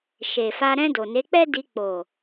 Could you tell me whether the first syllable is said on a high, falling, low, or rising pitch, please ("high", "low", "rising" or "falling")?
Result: low